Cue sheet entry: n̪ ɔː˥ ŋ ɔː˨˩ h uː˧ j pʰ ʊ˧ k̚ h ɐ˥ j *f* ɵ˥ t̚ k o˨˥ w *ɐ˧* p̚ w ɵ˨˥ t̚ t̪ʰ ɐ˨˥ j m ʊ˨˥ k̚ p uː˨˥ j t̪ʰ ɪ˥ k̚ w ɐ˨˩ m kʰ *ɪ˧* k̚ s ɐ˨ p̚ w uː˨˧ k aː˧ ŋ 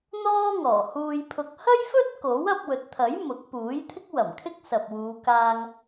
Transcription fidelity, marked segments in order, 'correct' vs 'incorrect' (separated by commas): correct, correct, incorrect